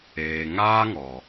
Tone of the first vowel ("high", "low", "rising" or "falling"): low